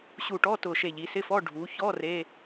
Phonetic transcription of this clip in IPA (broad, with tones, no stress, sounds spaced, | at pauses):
ɕ u˧˩ ʈ ɔ˧˥˧ t ʊ˧˩ ʃ e˧˩ ʎ i˩˧ s ɪ˧˥˧ f ɔ˧˥˧ ɖʱ u˩˧ ç ɔ˧˥˧ r e˧˥˧